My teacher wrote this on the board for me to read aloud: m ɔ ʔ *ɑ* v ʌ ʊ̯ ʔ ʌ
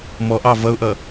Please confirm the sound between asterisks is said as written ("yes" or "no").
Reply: yes